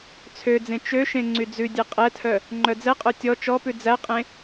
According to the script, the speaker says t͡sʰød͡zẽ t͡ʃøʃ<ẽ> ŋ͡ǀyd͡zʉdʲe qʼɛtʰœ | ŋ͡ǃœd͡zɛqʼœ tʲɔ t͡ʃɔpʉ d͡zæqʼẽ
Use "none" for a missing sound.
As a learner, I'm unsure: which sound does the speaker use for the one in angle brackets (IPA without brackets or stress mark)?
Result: ẽ